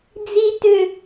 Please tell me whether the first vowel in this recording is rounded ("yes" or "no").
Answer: no